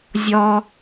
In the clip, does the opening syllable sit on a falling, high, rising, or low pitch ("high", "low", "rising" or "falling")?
high